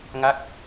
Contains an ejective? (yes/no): no